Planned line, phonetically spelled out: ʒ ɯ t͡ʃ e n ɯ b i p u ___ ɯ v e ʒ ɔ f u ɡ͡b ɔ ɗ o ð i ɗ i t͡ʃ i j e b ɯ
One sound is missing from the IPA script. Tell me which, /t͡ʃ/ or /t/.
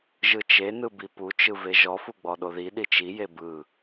t͡ʃ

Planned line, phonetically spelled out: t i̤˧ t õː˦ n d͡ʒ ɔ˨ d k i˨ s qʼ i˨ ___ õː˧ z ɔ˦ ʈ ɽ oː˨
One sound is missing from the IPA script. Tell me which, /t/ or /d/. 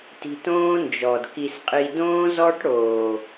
d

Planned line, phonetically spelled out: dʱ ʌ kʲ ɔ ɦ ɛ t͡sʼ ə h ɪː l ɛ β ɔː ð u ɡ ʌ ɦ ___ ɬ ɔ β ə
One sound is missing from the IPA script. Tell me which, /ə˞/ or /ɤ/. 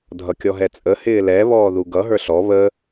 ə˞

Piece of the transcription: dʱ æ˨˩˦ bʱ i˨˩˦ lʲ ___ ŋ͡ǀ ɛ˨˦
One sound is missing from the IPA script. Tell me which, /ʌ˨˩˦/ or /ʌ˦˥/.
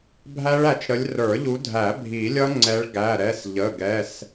ʌ˦˥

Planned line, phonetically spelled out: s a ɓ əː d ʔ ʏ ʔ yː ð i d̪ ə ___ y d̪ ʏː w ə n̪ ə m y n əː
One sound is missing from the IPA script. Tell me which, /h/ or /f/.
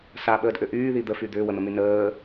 f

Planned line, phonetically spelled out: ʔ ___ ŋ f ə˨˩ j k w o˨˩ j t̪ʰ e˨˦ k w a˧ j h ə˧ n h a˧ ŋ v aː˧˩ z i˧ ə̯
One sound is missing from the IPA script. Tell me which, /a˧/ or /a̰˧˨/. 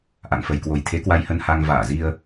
a̰˧˨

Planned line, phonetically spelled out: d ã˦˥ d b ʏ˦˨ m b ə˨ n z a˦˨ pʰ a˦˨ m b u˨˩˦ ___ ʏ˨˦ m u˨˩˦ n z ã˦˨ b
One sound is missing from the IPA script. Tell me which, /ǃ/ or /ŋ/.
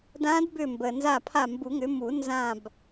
ŋ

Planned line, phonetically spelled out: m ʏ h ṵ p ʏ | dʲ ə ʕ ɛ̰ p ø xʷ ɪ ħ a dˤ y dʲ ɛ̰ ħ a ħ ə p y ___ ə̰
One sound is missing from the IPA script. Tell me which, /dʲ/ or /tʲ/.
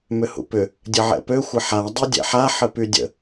dʲ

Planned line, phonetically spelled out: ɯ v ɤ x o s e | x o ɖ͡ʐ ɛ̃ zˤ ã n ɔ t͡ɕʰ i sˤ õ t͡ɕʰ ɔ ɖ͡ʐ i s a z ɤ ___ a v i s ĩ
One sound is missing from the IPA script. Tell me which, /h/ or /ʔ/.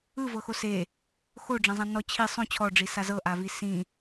ʔ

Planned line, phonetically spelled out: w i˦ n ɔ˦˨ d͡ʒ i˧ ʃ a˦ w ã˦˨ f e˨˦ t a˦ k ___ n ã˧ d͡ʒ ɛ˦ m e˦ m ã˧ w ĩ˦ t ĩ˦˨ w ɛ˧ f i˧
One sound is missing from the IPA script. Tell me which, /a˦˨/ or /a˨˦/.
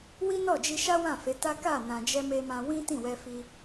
a˦˨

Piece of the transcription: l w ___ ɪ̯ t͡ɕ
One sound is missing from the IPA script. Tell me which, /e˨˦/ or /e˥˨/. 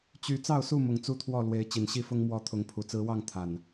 e˨˦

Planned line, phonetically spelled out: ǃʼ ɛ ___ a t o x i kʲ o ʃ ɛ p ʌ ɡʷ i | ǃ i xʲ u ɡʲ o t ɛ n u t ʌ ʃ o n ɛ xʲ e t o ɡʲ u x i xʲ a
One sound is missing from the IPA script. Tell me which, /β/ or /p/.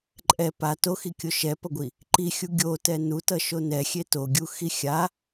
p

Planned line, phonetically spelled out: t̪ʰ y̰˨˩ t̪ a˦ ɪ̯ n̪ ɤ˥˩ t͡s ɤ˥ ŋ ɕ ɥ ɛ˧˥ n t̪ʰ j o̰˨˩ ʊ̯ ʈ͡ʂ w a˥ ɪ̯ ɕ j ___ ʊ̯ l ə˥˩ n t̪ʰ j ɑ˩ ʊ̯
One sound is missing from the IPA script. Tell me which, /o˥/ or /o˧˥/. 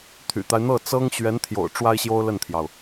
o˥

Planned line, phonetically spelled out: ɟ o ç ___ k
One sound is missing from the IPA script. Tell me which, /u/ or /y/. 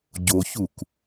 u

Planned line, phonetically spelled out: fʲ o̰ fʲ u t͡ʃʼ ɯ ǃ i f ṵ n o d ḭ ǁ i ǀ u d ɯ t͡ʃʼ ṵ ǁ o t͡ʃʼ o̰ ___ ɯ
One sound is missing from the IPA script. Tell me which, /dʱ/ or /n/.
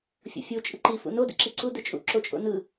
n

